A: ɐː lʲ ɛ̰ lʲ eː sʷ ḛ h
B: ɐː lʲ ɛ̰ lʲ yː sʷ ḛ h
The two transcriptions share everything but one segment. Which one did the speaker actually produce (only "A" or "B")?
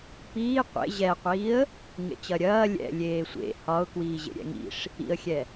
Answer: A